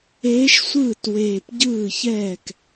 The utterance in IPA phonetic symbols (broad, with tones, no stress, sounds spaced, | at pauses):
eː˧˥ ʃ sʷ ɯː˥˩ t w eː˨˩ p ɟ ɯː˥˩ ç ɛː˥˩ k